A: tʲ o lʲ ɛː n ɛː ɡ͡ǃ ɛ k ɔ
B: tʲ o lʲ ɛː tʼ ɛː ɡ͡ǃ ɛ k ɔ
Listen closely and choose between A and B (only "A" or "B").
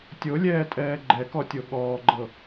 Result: B